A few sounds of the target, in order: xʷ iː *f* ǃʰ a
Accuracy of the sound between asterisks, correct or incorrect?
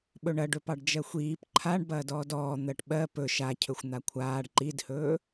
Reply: incorrect